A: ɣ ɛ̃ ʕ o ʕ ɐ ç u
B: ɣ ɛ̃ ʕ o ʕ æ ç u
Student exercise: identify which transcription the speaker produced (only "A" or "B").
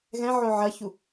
A